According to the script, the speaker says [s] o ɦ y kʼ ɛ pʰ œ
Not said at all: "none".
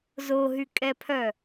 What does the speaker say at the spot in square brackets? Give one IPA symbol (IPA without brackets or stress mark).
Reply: z